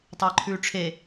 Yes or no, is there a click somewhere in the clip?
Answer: yes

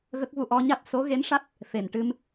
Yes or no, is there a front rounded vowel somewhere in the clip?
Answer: no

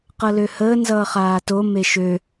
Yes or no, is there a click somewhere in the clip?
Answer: no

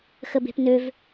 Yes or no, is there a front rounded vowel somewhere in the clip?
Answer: yes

